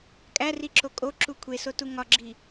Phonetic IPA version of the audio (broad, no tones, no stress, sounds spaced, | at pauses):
kʼ æ r i ǁ o kʼ o ǁ u kʷʰ e s o t u ŋ ɒ ɡ͡ǁ i